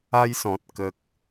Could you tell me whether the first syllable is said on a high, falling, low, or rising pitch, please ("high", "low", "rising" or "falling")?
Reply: high